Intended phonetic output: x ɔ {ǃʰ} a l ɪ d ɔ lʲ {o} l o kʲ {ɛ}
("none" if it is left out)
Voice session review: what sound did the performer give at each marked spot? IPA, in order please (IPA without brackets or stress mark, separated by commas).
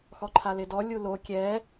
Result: ǃʰ, u, ɛ